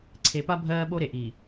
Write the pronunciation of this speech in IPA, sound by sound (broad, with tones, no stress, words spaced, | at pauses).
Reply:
ǀʰe˨pa˦ bʱɜː˦ ɓo˦ɾe˨ʔiː˨